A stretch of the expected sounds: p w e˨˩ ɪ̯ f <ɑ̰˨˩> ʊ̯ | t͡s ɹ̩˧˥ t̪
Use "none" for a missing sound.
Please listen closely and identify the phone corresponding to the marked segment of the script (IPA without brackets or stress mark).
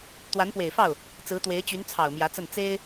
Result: ɑ˥˩